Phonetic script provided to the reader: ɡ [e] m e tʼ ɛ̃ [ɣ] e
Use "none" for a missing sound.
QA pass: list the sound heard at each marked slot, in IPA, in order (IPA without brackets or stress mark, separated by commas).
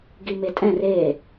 i, r